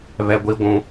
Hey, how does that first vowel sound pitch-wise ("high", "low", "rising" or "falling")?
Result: high